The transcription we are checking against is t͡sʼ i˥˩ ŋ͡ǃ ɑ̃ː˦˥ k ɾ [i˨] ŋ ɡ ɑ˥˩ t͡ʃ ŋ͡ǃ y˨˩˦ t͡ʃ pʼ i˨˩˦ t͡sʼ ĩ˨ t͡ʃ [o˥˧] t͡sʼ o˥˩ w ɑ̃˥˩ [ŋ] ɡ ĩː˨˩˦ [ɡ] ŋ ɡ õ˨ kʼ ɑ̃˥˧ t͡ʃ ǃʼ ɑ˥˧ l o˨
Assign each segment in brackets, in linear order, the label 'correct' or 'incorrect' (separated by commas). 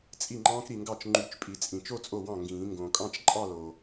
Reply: correct, correct, correct, incorrect